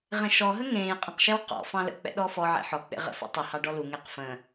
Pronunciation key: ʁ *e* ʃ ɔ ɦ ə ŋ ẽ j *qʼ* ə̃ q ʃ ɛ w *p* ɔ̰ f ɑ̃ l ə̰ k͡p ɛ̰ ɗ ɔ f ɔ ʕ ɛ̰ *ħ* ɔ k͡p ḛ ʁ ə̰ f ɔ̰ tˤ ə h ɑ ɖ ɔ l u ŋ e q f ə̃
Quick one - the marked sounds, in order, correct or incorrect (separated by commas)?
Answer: incorrect, correct, incorrect, correct